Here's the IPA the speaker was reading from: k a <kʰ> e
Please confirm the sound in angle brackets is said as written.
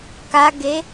no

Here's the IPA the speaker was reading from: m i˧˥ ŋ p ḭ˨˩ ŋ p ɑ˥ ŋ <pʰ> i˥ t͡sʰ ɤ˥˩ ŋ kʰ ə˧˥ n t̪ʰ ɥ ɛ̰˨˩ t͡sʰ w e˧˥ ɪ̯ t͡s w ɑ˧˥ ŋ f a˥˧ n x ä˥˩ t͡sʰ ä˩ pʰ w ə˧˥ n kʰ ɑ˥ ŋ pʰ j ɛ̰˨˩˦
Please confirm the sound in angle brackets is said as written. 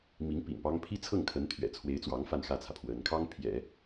yes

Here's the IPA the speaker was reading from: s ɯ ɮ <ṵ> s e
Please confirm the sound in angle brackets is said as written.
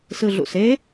yes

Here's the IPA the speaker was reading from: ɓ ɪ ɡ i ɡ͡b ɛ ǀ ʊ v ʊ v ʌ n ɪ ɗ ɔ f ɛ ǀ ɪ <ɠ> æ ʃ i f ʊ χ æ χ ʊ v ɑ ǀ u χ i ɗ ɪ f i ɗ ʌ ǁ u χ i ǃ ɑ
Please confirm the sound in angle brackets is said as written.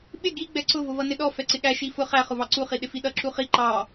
yes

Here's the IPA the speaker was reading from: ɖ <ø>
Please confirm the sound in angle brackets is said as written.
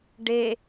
no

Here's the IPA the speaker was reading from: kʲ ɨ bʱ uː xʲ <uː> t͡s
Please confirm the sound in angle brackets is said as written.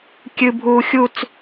no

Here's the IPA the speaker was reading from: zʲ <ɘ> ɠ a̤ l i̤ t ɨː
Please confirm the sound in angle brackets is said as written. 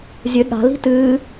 yes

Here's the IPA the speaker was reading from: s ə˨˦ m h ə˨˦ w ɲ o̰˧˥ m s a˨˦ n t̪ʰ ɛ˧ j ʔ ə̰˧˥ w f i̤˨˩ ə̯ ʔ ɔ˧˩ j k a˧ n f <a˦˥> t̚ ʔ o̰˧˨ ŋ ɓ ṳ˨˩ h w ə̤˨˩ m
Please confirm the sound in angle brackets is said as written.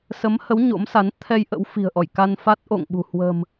yes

